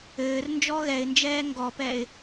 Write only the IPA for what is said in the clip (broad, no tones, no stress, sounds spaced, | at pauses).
ɘː r n d͡ʒ ɔ ɣ ɛ ɪ̯ n d͡ʒ ɛː ŋ ɡ ɔ p ɛ ɪ̯